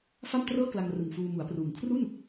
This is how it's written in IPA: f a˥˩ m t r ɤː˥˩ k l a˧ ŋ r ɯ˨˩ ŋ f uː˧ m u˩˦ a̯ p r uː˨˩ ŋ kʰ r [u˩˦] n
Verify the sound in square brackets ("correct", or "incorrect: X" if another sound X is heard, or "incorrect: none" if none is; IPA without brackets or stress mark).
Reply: incorrect: u˥˩